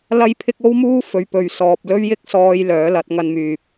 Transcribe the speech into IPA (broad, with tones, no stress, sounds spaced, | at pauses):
l ɐ˥ j pʰ ɪ˥ k̚ o˥ w m uː˥ f ɵ˨ ɥ p ɵ˨ ɥ s ɔː˨ p̚ l ɵ˥ ɥ j ɪ˥ k̚ s ɔː˧ j l œː˨˥ l ɐ˨˥ t̚ ŋ ɐ˧ n m yː˨ p̚